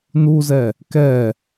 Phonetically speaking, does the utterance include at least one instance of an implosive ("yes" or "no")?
no